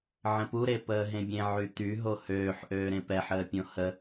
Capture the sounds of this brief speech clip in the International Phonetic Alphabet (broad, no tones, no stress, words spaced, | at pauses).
ʕə̃puɾe pəːɦẽbʲẽ ʕyt̪y ɦohøːħʔøː ɾẽpɛħəːpʲõ hə